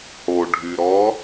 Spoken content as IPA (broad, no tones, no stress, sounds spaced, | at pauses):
h o ɖʱ y ɾ ɔ